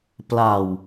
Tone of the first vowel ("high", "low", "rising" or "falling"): low